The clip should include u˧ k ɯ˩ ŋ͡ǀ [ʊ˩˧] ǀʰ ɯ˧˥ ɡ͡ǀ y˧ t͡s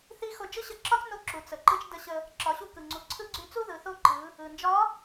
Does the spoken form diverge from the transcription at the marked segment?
yes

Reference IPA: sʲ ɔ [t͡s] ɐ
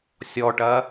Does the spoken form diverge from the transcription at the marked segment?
yes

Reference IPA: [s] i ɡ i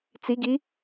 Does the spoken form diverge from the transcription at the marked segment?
yes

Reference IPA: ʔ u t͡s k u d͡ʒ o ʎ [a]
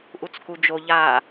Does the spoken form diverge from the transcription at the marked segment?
no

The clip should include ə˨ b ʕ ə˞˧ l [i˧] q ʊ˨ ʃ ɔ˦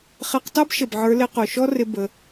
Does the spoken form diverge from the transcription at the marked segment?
yes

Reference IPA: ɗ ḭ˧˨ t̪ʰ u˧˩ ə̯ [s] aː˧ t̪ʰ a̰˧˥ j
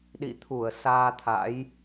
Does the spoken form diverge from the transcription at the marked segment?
no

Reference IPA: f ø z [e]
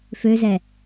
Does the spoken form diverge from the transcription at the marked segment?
yes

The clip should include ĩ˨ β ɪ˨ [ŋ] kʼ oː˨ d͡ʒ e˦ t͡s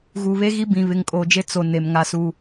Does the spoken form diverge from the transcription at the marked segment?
no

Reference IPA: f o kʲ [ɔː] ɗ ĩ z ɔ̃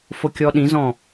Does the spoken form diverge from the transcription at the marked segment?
yes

